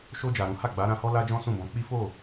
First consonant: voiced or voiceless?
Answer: voiceless